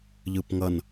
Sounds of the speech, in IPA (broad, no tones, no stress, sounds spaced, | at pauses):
ʎ ɯ p ŋ ʌ n